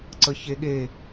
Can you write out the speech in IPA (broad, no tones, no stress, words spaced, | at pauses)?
ǀəçeɠe